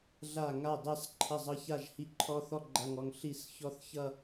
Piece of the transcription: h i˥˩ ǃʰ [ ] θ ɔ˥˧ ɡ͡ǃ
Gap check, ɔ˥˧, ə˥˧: ɔ˥˧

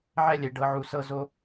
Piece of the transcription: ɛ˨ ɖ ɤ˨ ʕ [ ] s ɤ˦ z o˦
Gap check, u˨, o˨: u˨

